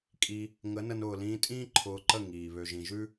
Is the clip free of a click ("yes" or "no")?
no